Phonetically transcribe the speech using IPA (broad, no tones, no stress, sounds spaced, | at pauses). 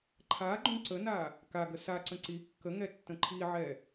ǃʰ a ɡ͡ǃ ũ ǀ ə n a | k a ɡ ə s a ǀ ə̃ ǀ i kː ə ŋ ɛ tː ə̃ ǃʰ i ʕ ɛ